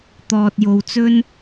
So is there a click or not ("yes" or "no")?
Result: no